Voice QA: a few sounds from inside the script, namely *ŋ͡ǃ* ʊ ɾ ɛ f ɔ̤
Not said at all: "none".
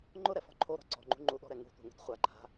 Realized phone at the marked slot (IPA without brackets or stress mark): ŋ͡ǃ